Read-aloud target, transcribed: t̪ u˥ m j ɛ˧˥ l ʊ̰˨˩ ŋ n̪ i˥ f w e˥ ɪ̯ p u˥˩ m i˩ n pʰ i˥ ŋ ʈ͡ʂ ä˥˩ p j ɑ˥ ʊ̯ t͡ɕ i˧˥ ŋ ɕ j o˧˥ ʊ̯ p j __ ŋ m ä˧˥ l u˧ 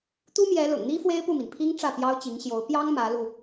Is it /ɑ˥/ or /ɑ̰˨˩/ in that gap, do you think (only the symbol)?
ɑ˥